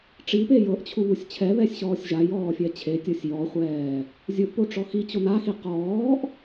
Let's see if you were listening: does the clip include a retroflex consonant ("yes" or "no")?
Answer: yes